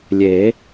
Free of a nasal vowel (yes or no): yes